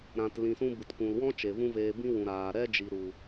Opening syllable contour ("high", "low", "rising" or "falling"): low